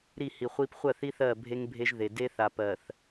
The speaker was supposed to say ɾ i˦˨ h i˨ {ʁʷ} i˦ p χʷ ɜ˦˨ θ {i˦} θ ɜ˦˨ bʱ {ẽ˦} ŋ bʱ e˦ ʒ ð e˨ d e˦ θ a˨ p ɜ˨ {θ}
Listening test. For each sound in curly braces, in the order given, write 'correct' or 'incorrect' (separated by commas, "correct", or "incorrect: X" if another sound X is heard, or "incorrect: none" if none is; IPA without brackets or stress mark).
incorrect: χʷ, correct, incorrect: e˦, correct